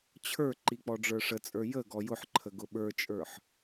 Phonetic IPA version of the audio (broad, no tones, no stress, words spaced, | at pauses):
t͡ɕʰə˞ǃi k͡pɔɖ͡ʐə˞ʂət͡sʼə˞ jə ɡɔjʊħǃʰə ɡʊɓə˞t͡ʃʼə˞ħ